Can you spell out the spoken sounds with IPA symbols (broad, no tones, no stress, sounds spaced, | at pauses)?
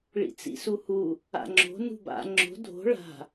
ɭ ḭ t͡s ḭ s u h u | a̰ ŋ͡ǁ o̤ n ṳ b a̰ ŋ͡ǁ o̤ dʱ o̤ ɭ a̤